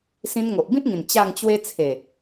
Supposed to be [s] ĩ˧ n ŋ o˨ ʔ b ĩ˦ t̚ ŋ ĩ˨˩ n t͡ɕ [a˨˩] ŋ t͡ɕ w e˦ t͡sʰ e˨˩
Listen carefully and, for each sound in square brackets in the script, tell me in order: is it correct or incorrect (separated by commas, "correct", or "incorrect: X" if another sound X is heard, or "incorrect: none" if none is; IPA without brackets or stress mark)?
correct, incorrect: a˥˧